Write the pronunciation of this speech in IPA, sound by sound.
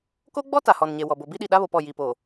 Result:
k o˦ ɡ͡b ɔ˦ t a˨ h ɔ˨ n ɲ e˨ w ɔ˨ b o˨ b i˦ ɗ i˨ ɗ a˦ β o˨ p ɔ˦˨ j i˨ p oː˨

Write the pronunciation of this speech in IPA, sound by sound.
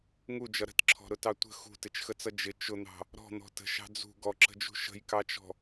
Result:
ŋ u d͡ʒ ʌ ɾ ə̤ t ǁʰ ɔ̤ ɾ ʊ t ɑ tʷ ə̤ x ṳ t ɪ t͡ʃ x ə t͡s ʌ d͡ʒ ɪ t͡ʃ ʊ n̪ ɑ̤ | ɾ ɔ̤ n̪ ɔ̤ t ə̤ ʃ ɑ̤ d͡z ṳ ɡ ɔ ǁ ə̤ d͡ʒ ṳ ʃ ə̤ j k ɑ t͡ʃ ɔ̤

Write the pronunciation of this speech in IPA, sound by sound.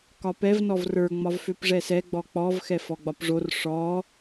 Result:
k ɒ p ɛ v n ɔ v r ə˞ ŋ͡m ɒ v f ø p ʐ ɛ s ɛ ɡ͡b ɔ k͡p ɔ v x ɛ f ɔ ɡ͡b ɒ p ʐ o r ʂ ɔ

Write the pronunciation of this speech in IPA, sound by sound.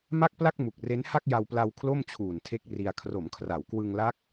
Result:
m a˥˩ k̚ p l a˥˩ k̚ m u˨˩ k̚ r e˦˥ n h a˥˩ k̚ j a˧ w p l a˧ w kʰ l o˥˩ m t͡ɕʰ uː˨˩ n tʰ e˦˥ k̚ r i˧ a̯ kʰ r o˩˦ m kʰ r a˩˦ w k w ɯ˧ ŋ l a˦˥ k̚

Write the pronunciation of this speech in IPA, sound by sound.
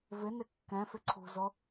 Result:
v ɪ n ɪ kː ɛ̃ f ɪ ǀʰ ṳ z o

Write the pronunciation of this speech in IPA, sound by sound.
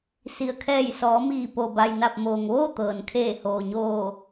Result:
s i˩ ə̯ kʰ ɛː˧˩ j s ɔː˩˧ m iː˧˩ p o˩ b a˩ j n a˧˩ p̚ m oː˩ ŋ ʋ oː˥˨ t̪ ɤː˩ n kʰ eː˧˩ h oː˩ ɲ oː˧˩

